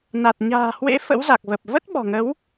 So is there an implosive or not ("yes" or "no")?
yes